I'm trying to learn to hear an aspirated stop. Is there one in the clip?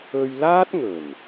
no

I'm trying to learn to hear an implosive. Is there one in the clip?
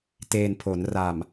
no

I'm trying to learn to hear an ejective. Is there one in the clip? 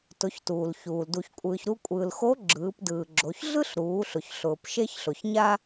yes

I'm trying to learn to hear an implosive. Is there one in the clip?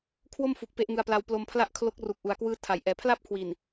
no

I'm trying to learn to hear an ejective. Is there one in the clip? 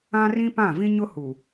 no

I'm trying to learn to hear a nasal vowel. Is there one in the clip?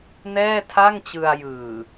no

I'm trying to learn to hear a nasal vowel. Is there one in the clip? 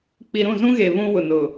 yes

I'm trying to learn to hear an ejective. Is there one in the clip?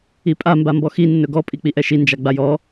yes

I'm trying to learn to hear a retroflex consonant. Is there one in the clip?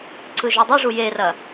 yes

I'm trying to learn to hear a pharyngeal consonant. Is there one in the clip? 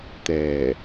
no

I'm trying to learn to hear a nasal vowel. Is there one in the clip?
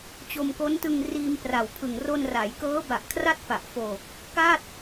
no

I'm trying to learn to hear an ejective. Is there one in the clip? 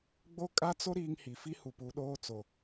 yes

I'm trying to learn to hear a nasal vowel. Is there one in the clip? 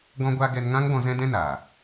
yes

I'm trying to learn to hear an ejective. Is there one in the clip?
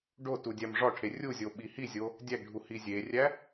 no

